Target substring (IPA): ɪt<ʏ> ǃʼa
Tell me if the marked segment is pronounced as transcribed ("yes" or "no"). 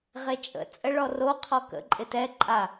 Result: no